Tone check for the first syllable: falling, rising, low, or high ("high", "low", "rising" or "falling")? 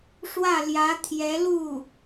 falling